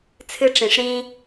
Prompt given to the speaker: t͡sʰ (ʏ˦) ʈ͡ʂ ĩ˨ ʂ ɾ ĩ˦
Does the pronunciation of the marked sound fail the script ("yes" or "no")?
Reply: yes